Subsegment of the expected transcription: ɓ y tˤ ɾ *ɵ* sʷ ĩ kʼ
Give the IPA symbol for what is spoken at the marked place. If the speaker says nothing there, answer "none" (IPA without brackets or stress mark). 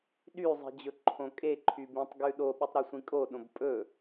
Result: ɵ